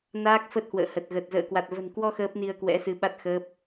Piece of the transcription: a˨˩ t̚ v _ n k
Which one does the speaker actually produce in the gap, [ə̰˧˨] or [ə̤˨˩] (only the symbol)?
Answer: ə̤˨˩